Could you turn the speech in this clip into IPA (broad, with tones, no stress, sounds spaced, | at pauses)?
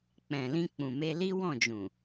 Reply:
k͡p ɛ̃˨ l ĩ˧ k͡p ũ˨ m e˧ l i˦ w ɔ̃˦˨ d͡ʒ ũ˨